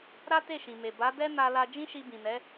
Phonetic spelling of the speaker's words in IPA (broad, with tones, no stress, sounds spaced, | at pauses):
ɾ a˦ t e˦˨ ʃ ĩ˨ m e˨ b a˨˦ d ɛ˦ n a˧ l a˧ d͡ʒ ĩ˦ ʃ i˧ b ĩ˨ n ɛ˨˦